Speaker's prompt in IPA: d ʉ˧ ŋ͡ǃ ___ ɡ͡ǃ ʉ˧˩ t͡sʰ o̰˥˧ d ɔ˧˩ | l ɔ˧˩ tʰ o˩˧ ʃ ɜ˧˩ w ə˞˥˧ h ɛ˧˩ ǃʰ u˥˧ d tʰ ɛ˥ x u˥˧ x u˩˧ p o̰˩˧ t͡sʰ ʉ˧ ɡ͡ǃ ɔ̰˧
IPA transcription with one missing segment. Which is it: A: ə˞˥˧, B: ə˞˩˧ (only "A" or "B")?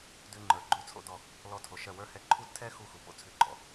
B